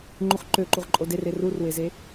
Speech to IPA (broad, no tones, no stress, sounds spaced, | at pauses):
ŋ͡ǃ u χ ǃ ø ǃ u ʁ ǃʼ o d e r e r u r w e z e